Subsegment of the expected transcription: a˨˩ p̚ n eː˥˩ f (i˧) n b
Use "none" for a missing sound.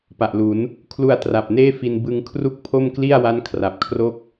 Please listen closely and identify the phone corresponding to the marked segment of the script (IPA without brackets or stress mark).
i˧